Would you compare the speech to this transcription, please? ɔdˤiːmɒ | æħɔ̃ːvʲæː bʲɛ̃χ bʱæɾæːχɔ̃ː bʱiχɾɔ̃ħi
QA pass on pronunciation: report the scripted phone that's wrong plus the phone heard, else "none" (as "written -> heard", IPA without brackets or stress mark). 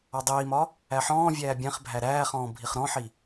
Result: none